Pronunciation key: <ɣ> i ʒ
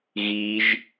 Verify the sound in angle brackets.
correct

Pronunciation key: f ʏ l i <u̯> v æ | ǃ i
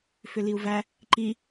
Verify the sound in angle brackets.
correct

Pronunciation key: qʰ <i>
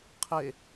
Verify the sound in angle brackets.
incorrect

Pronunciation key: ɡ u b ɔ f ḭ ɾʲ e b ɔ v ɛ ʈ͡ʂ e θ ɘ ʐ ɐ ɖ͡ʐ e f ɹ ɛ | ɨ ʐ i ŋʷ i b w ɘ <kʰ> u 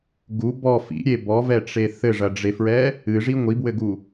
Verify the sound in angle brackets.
incorrect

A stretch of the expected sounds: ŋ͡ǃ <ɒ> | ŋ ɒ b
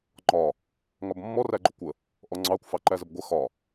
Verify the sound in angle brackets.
correct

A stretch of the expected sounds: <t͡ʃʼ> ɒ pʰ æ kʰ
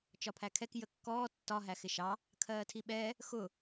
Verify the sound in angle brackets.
incorrect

